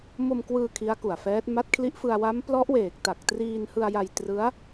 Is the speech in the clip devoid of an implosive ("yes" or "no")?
yes